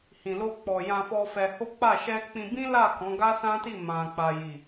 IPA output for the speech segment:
h ĩ˨ l o˧ k͡p ɔ˨ j ã˧ f ɔ˧ f ɛ˧ h o˦ k͡p a˦˨ ʃ ɛ˧ k͡p ĩ˧ b ĩ˦ l a˦˨ k ɔ̃˨˦ ɡ a˦ s ã˦ t i˦˨ m ã˧ k͡p a˧ j i˨

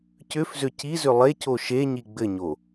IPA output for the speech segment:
c ʏ f z ʏ c i z ʏ lˠ e c o ʃ e ɲ i ɡ͡b ɘ ɲ o

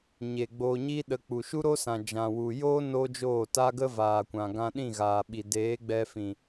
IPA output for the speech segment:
ɲ e˨ ɡ͡b oː˧ ɲ i˦ ɗ ə˧ k͡p u˨ ʃ u˦ ɾ o˦ s ã˨ d͡ʒ ã˨ w u˨ j oː˦ n oː˦ d͡ʒ oː˦˨ t a˦ ɡ ə˦ v aː˨ kʷ ã˨ ɡ ã˧ ɗ ĩ˦˨ ɣ aː˨ ɓ i˨ d eː˨˦ ɡ͡b ɛ˧ f ĩ˨

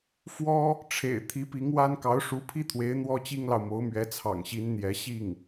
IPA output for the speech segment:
f w ɔ˥ | ʈ͡ʂʰ ḛ˨˩ ɪ̯ t̪ʰ i˧˥ p i˧˥ ŋ w a˥ n k ɑ˧˥ ʊ̯ ʂ u˧˥ pʰ i˥ t̪ʰ w e˧˥ ɪ̯ n̪ w ɔ˥ t͡ɕ i˥ ŋ l ɑ˨ ʊ̯ m o˧˥ ʊ̯ m ɥ ɛ˧˥ t͡sʰ ɑ̰˨˩ ŋ ɕ i˧˥ n n̪ j ɛ˧˥ ɕ i˥˩ ŋ

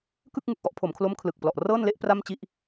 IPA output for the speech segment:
k ɯ˥˩ k̚ ŋ ɯ˨˩ k̚ ʔ ɔ˦˥ ʔ pʰ o˩˦ m kʰ l o˦˥ m kʰ l ɯ˨˩ k̚ p l ɔ˨˩ ʔ r ɤː˥˩ n l e˥˩ ʔ p r a˥˩ m t͡ɕ i˥˩ ʔ

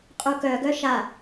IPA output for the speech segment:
qʼ u k œ ɡ œ ʃ a

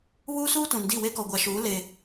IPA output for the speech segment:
β uː˦ s uː˦ t ũ˨ n d i˦˨ w e˦ k ɔ˨ ɡʷ a˨ ʃ uː˨˦ l e˨

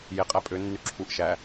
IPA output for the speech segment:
j e qʼ æ pʼ ø nː y ǁʰ u ʔ ʃ æ

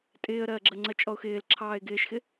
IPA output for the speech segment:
tʼ ɪː ə̯ ɾ ɜː ɡ͡ǁ ɜ ŋ͡ǀ ɜ t͡ʃʼ ɔ ʊ̯ x ɪː l ǁʰ ɑː ɪ̯ ɡ ɪː ʃ x ɪ

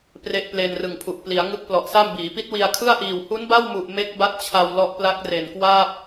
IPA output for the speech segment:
p r e˦˥ ʔ p l e˧ n r ɯ˨˩ ŋ pʰ u˨˩ ʔ p l i˩˦ a̯ ŋ ɯ˦˥ k̚ p l ɔ˨˩ ʔ s a˥˩ m b iː˩˦ p i˦˥ t̚ w i˧ a̯ kʰ ɯ˥˩ a̯ ʔ iː˨˩ w h u˦˥ n b a˥˩ w m u˨˩ ʔ m e˦˥ k̚ b a˦˥ t̚ t͡ɕʰ a˧ w l ɔ˦˥ ʔ p l a˦˥ k̚ r e˨˩ n k w aː˥˩ p̚

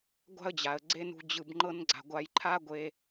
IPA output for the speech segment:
ɡʷ a̤˦ ə̯ d͡ʑ a˨ ə̯ ɡ͡ǀ e˦ n ṳ˧ d͡ʑ ɯ˨ b ŋ͡ǃ ɤ˧ n ɡ͡ǀ a̤˨ ɡʷ a˨ j ǃʰ a˦ ɡʷ e˧

